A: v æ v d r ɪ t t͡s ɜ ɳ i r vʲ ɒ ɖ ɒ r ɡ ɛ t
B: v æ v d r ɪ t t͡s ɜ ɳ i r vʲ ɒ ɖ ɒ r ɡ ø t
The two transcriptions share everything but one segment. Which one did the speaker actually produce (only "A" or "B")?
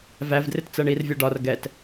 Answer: A